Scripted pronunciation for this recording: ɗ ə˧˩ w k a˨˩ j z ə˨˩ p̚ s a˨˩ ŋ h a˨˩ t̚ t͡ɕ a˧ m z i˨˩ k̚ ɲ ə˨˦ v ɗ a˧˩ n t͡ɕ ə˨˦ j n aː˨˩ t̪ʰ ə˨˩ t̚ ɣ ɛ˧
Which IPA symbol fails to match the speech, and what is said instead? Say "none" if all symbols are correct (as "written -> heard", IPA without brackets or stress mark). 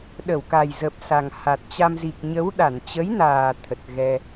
v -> w